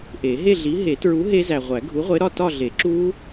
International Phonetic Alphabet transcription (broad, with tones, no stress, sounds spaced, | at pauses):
ʔ e˨˩˦ ɦ e˥˧ ɮ i˨˥ ɦ e˨˩˦ t ɹ u˨˥ ɦ e˦˥ z æ˨ ʁʷ æ˨˩˦ ɡʱ u˨˥ ʁʷ e˨˥ ɾ ɒ˥˧ t ɒ˥˧ ɮ e˨˩˦ ǁ u˦˥